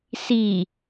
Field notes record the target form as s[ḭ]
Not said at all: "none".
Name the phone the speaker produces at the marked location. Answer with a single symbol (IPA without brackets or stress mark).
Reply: i